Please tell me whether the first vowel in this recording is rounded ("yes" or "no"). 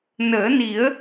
no